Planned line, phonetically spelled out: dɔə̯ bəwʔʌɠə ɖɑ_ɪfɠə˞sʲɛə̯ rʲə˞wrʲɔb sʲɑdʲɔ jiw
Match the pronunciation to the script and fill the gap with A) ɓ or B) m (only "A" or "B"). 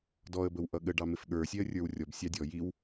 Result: B